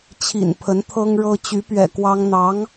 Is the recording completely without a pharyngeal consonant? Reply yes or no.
yes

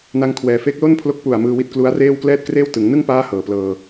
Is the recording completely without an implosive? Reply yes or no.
yes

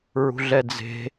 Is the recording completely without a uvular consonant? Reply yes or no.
yes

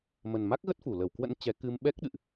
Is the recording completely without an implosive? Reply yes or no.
no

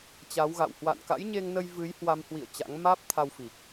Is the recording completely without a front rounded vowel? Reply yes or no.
yes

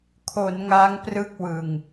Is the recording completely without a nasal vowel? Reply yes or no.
yes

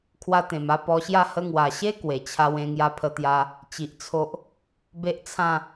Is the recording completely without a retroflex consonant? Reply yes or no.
yes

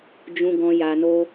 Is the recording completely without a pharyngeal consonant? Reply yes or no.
yes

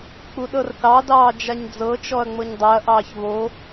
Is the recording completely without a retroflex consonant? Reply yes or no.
yes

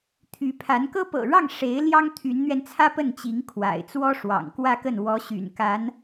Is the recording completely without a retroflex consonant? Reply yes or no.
no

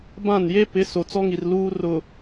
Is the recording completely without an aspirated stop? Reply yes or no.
yes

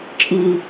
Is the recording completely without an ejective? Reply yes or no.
no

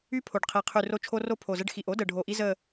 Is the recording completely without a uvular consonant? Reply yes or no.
no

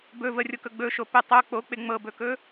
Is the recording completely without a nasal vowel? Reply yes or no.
yes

